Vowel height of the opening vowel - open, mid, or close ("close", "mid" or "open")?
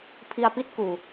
close